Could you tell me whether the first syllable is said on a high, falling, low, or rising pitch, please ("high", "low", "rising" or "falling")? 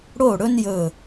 falling